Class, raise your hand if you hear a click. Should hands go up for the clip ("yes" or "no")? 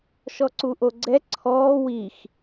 yes